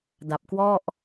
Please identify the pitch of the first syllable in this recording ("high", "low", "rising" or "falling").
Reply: low